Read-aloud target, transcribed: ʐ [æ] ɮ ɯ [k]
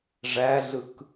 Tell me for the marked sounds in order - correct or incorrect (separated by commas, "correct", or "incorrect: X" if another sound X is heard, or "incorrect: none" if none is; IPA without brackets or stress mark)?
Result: correct, correct